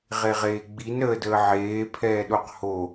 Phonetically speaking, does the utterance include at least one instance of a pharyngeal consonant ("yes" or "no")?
yes